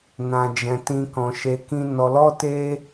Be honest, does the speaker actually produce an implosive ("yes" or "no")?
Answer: no